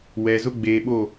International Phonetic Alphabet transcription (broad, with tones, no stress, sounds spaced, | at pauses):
w ɛ˨ z ʊ˦ ɡ͡b eː˨ ɓ o˦˨